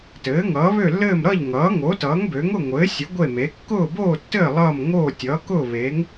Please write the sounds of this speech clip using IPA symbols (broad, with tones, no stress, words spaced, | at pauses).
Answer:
tɘː˩˥ ŋʌː˩˥βø˥˨lːɘː˥˨m ɾʌ˥˨ʎŋʌː˩˥ ŋo˩˥tʌː˩˥ŋbø˩˥ŋ ʊ˥˨ŋʷɘː˩˥sʲə˩˥ ɡʷe˥˨me˩˥ kːʊː˥˨boː˥˨tːɘː˥˨ lˠʌː˥˨m ŋoː˥˨ tʲʌː˩˥kʊː˥˨ βe˩˥ŋ